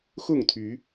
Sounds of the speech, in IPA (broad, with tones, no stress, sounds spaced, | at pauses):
x ʊ˥˨ ŋ t̪ʰ y˨˦